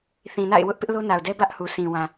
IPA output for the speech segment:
θ ĩ˨ n a̰˦˨ ɪ̯ w ʊ˦ ʔ p ɪ˦ ʔ l o˦ n a˨ ʊ̯ d ɛ˦ b ä˦ ʔ h u˨ s ĩ˨ w ã˨

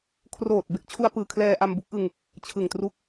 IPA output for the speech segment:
kʰ r oː˨˩ t̚ b e˥˩ k̚ t͡ɕʰ u˧ a̯ p ɯː˨˩ kʰ l ɛː˧ ʔ a˧ m b u˦˥ k̚ ʔ ɯ˧ ŋ | t͡ɕʰ ɯ˨˩ ŋ t r u˦˥ k̚

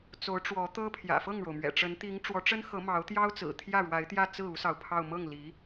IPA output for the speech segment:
t͡s o˧˥ ʊ̯ ʈ͡ʂ w ɔ˧˥ t̪ ɤ˥ pʰ j ä̰˨˩ f ɤ˥˩ ŋ ɻ o˩ ʊ̯ m ɥ ɛ̰˨˩ ʈ͡ʂ ə˧˥ n t̪ i˧˥ ŋ ʈ͡ʂ w ɔ˧˥ ʈ͡ʂ ə˥ n x ɤ˧˥ m ɑ˧˥ ʊ̯ t̪ j ɑ˥ ʊ̯ t͡s ɹ̩˨˩ t̪ʰ j ä˥˩ ɻ w a˧˥ ɪ̯ t̪ j ä˥˧ t͡s ɹ̩˥˩ u˥ s ɑ˨ ʊ̯ pʰ ɑ˥˧ ʊ̯ m ɤ˥˩ ŋ l i˧˥

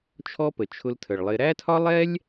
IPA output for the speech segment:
t͡ʃʰ ɔ˦ p ə˨ t͡ʃʰ ʊ˧ l tʰ ə˨ ɭ lˠ ɪ˧ ɾ æ˦ tʰ ɒ˦ lˠ ɛ˦ lʲ

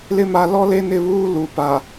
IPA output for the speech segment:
l ɪ˦ m a˨ l ɔ˦ l e˦ n ɪ˦˨ β uː˦ l u˨ p a˨

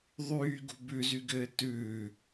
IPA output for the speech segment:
ðˤ yː ɡ ṳ b ʉ z y ɡ ɘː t ʉː

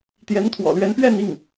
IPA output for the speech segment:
t̪ j ɛ˧˥ n t̪ʰ w ɔ̰˨˩ l ɥ ɛ˧˥ n p ɥ ɛ˥˧ n i˥˩ ŋ

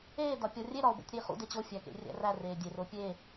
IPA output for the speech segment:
eː d ɒ pʲ ɒ rʲ e ɾ ɒ o̯ b o̰ tʲ ɾ iː χ ṵ d e t͡ɕ o fʲ æ k ḛ rʲ æ̰ r æ r eː dʲ e r o pʲ e

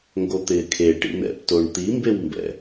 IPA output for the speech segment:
ŋ ɡ o t̪ ɪː kʰ e ʈ ḭ n̪ ɛ̰ p t o ɳ t̪ i m b e w m b ɛ̰

